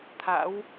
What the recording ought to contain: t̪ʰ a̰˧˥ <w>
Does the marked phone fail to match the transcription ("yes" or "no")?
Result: no